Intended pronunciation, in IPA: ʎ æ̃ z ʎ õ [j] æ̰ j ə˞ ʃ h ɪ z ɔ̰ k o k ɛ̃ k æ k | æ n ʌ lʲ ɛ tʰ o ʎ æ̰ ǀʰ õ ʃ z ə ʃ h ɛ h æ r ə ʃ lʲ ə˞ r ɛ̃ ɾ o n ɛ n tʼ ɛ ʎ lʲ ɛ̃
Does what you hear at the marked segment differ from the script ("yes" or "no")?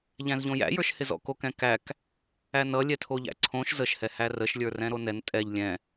no